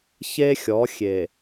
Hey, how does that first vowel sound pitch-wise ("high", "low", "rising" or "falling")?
high